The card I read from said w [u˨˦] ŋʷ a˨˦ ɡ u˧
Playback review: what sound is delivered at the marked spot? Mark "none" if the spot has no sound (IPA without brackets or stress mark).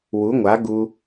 u˨˦